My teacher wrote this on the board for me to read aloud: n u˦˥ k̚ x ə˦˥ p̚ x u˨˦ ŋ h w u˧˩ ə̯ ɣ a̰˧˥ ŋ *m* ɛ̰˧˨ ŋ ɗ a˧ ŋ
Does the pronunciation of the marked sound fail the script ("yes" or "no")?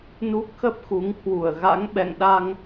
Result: yes